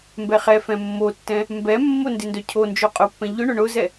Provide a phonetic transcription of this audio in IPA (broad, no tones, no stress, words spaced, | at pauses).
mbɛχɛfɛ̃ mːotːɛ̃ | mbɛmːo ndɪndœcʰond͡ʒo qʼʊpːɛ̃ ʎʊɳʊ ɳʊzɛ